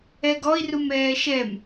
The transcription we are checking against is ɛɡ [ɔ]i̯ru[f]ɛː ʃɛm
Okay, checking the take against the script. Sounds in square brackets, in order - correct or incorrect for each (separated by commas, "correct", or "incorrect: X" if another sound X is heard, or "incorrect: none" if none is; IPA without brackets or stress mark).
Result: correct, incorrect: m